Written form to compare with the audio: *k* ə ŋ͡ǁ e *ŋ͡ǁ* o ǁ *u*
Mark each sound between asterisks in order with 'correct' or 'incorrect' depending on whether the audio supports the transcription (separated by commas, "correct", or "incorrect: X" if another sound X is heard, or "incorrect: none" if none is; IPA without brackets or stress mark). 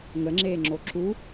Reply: incorrect: ŋ, correct, correct